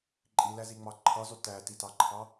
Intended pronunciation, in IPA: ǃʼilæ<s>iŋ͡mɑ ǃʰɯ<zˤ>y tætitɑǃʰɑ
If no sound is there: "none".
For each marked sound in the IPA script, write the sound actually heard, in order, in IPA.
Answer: z, zˤ

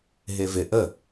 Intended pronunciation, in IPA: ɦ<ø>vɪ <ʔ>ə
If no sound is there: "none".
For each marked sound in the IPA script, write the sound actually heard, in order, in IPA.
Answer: e, ʔ

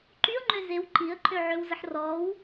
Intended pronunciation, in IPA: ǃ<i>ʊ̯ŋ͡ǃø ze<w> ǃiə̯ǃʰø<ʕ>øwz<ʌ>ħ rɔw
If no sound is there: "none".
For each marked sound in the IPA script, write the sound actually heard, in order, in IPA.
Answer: y, w, ʕ, ə

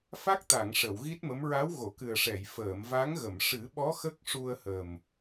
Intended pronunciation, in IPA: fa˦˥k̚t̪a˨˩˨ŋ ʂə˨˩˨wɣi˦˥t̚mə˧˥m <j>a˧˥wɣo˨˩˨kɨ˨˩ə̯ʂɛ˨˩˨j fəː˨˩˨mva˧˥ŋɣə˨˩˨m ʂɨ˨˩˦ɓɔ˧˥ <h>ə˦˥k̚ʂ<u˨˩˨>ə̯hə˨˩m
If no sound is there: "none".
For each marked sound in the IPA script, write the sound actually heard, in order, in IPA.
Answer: ɹ, x, u˧

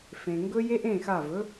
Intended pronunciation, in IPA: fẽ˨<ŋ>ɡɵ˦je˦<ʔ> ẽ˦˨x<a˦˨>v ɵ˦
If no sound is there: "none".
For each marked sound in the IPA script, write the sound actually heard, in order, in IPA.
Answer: ŋ, ʔ, a˦˨

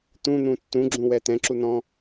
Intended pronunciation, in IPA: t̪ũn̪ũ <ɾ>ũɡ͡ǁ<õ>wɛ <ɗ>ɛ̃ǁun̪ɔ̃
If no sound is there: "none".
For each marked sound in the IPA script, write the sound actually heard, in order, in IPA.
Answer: tː, ũ, t̪

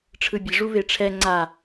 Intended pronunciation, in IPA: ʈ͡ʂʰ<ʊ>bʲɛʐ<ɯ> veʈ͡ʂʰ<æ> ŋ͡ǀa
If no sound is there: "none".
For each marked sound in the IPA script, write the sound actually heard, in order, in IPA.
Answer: ɯ, u, ɛ

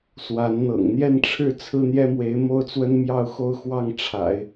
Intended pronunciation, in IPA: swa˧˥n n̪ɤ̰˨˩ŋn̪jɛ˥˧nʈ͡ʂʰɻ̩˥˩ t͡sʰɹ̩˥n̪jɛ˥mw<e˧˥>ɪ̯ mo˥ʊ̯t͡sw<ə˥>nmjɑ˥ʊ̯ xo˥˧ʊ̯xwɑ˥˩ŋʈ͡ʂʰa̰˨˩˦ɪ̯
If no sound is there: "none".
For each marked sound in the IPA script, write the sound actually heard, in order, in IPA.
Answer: e˧˥, ə˥

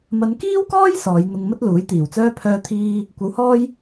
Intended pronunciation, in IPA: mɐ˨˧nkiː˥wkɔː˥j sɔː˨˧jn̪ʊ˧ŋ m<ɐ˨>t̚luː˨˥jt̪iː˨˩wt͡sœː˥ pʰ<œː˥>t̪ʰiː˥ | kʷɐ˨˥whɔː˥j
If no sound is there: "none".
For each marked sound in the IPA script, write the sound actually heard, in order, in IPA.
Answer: ɐ˥, œː˥

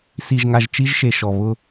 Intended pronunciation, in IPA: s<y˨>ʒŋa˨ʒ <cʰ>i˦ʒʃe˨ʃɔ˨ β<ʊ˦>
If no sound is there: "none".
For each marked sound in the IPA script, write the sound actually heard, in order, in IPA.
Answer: i˨, t͡ʃ, ʊ˦

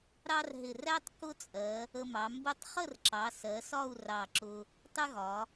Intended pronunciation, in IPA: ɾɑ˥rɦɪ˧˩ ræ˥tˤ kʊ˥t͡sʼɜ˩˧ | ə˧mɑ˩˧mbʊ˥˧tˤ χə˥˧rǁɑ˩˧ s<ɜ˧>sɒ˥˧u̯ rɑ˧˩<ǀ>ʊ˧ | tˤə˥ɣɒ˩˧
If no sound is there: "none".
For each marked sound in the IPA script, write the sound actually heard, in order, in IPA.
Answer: ɜ˩˧, ǁ

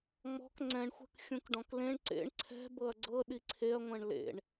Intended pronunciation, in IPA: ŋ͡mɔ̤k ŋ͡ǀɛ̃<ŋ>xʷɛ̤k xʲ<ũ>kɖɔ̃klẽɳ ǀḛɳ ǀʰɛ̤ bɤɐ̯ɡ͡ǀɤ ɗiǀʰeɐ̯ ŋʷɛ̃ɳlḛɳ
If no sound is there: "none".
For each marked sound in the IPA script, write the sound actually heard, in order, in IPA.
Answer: ɳ, ũ

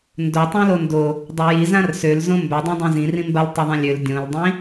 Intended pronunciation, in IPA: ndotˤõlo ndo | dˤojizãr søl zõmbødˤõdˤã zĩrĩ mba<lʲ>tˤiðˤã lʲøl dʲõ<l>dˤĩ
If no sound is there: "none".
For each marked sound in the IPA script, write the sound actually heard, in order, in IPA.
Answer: l, l

